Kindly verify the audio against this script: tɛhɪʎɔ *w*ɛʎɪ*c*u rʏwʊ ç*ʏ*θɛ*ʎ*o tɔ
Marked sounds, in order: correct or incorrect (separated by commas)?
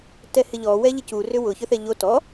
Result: correct, correct, correct, correct